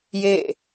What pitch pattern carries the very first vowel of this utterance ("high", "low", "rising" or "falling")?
falling